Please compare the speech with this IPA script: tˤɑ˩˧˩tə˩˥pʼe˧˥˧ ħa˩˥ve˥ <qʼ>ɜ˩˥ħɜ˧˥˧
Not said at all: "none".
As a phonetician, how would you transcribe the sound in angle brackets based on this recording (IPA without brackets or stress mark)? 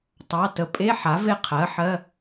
qʰ